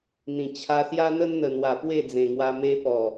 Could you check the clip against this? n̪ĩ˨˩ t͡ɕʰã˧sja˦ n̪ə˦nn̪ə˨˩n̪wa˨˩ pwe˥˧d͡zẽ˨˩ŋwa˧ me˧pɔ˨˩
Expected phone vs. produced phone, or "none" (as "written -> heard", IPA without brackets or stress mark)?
ã˧ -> a˧